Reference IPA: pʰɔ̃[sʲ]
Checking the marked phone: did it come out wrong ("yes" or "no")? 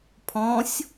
no